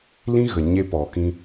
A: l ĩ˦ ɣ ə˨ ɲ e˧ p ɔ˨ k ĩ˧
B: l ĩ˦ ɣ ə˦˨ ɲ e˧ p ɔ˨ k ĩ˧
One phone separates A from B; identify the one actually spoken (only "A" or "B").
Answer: A